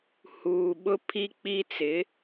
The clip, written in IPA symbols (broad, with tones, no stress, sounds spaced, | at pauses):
h uː˨ ɓ ʊ˦ pʰ i˦ k͡p i˦ t͡s ɪ˨˦